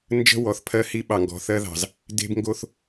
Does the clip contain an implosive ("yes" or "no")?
yes